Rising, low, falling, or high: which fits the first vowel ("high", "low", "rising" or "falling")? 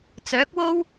rising